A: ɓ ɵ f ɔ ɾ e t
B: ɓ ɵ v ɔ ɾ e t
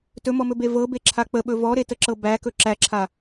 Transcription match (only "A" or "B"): B